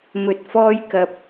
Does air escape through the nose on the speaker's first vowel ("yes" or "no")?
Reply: no